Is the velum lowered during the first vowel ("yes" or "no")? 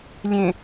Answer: yes